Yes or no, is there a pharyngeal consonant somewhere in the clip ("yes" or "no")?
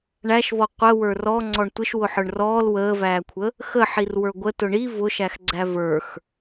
yes